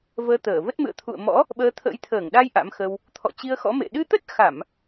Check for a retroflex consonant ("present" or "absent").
absent